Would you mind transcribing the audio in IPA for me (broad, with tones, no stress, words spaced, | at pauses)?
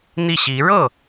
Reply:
n̪i˥˩ɕi˧˥ ɻɤ˥˩